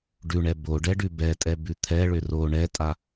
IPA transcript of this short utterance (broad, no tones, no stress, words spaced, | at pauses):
ɖʉɳɛ boɖɛɖʉ bɛtʼɛbʉ t̪ʰɛɭʏ ro ɳɛtʼa